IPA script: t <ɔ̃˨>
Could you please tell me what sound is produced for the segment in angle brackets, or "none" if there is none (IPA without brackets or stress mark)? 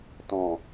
ɔ̃˨